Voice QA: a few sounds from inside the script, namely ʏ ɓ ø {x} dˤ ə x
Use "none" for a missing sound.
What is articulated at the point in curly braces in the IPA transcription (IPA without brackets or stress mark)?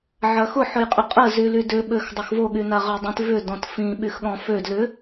x